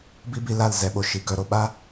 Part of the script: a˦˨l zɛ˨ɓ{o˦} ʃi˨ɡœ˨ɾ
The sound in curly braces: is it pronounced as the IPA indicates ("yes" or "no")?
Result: no